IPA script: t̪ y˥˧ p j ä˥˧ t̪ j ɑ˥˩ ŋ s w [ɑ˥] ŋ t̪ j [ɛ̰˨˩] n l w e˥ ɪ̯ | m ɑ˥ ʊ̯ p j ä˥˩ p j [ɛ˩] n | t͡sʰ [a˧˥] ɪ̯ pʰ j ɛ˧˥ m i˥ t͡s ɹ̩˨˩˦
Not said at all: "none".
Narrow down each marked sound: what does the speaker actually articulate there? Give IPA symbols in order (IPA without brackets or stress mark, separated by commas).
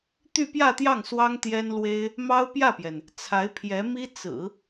ɑ˥, ɛ˥, ɛ˩, a˧˥